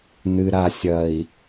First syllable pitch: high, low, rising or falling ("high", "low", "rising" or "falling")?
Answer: low